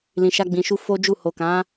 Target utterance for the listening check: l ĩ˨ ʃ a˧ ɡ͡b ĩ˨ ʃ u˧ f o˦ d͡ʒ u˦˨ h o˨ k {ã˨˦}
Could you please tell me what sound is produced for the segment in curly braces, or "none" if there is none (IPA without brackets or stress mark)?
ã˨˦